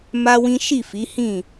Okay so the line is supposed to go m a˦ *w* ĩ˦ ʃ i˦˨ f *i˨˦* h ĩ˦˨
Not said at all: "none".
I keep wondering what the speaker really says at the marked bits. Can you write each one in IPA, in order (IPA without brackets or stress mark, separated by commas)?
w, i˨˦